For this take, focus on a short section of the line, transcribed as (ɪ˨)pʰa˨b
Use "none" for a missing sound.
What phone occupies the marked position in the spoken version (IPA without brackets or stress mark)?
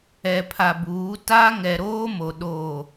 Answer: ɛ˨